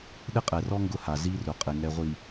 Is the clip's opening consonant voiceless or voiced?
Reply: voiced